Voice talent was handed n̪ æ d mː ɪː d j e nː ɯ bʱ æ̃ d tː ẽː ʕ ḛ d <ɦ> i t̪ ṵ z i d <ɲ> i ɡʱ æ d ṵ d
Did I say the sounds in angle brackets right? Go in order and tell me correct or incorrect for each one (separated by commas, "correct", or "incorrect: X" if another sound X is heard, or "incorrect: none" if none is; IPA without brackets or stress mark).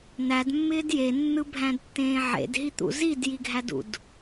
correct, incorrect: j